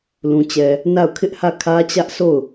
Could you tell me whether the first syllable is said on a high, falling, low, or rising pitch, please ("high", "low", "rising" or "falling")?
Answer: low